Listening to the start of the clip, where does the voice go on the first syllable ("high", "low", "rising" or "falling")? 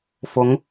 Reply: rising